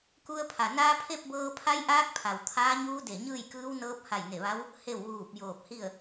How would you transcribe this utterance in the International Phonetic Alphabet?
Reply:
ku˧ə̯pʰa˩naː˧˥ pʰe˥˨p̚bɤː˧pʰa˧˥jʔaː˧˥k̚ pʰa˩wt̪ʰaː˧˥ɲuː˧˥ de˧˩ ɲɯː˥˨jkɯː˧˥wnɤː˧˥p̚ ha˧˩jne˧˩ʋa˧˥w | he˧˩w ʋuː˧˩p̚joː˧˩p̚hi˥˨ə̯

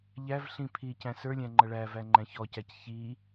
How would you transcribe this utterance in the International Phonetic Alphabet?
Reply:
ʎæv ɬĩpʰi cæ̃sə˞lʲæ̃ ŋ͡ǃʌɭævæ ŋ͡ǃæ̃çɔcæc çi

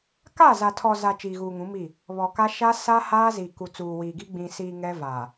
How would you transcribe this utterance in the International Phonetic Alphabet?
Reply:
ka˦˨ za˨tʰɔ˨za˨ t͡ʃiː˨ɣuː˨ŋũ˨˦miː˦˨ | βɔ˨ka˦ ʃa˦ sa˦ haː˦zi˨ ku˨t͡suː˨wiː˨ɡi˦ ɡ͡bĩ˨siː˨ ŋɛ˦ vaː˨

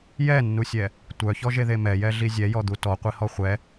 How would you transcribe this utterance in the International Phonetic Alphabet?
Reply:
jɛnːusʲɛ | tʷœçɔʒeðe mɛjɛɮi zʲɛjɔd̪u tɔqʷihɔ χʷɛ

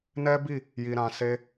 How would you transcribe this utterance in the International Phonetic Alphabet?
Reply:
nɛ˦bi˦˨ | ji˧ɾã˧ se˦

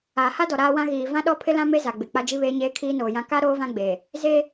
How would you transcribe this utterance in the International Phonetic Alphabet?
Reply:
aː˨ha˦dɔ˨ ɾaː˦wã˦ ɣiː˨ vã˦ɗɔ˦pʰɪ˦lã˦ me˦za˨ɡ͡bɪ˨ k͡pa˦d͡ʒi˦βeː˦ɲeː˦ kʰiː˦noː˨jã˦ ka˦ ɾoː˦vã˦ɡ͡be˨ | ze˦

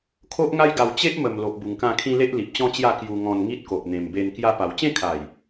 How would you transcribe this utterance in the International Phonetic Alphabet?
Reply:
kʰo˦ʔŋa˦jɡa˧w t͡ɕe˦ʔmə˨˩m lo˨ʔbu˨˩ŋkã˧kʰĩ˧ le˦ʔli˨p̚t͡ɕɔ̃˦t͡ɕja˥˧ kju˧ŋɔ̃˧nŋi˦t̚ko˨ʔ n̪ẽ˨˩mbe˧n kja˧ pa˨˩wt͡ɕẽ˥˧kʰa˨˩j

